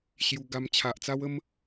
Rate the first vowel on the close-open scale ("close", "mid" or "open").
close